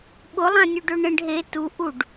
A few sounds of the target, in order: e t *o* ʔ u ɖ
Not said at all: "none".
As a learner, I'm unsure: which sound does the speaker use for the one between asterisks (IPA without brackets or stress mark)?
u